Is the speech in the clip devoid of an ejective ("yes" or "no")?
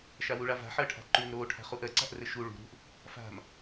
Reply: yes